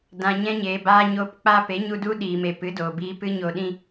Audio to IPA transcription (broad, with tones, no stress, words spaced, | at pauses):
dã˨ɲɛ̃˧ɲeː˨baː˧ ɲo˧pk͡pa˦ pe˨˦ɲu˧du˦ ɗiː˨me˨ pɨ˨˦doː˨biː˧ pɨ˦ɲo˧ɗĩ˦